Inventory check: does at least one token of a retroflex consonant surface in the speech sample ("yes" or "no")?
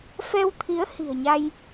no